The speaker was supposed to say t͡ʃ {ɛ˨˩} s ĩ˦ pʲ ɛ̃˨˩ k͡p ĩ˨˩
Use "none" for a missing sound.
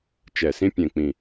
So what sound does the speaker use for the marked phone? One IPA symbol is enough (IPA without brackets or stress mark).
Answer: ɛ˨˩